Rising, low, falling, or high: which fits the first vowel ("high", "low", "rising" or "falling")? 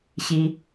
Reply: high